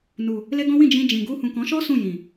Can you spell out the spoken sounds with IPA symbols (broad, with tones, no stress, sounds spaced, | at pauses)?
n u˨ | l e˦ ɡ ɔ̃˦ w ĩ˦˨ d͡ʒ ĩ˧ d͡ʒ ĩ˨ ɡ u˧ h ũ˨ k ɔ̃˨˦ ʃ ɔ˦ s ũ˦˨ j ĩ˨